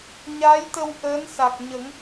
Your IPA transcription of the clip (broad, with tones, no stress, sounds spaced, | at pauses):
ɲ a˧˥ j t̪ ə˧ w ʔ əː˧˥ n s a˨˩ k̚ ɲ ə˨˩˦ ŋ